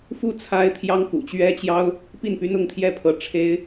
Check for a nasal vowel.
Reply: absent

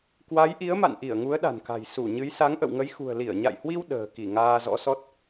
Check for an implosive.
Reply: present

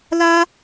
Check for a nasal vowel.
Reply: absent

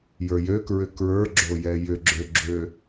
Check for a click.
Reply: present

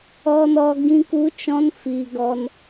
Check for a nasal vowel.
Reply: present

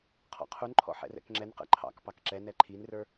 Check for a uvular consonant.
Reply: present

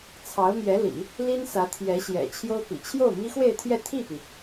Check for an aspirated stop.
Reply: present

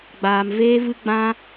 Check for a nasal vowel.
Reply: present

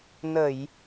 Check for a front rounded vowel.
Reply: absent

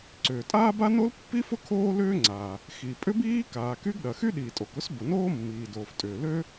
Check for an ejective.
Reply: present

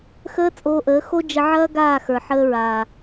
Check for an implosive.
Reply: absent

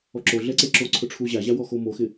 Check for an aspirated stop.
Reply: present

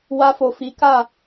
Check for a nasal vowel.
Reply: absent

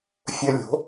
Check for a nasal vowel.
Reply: absent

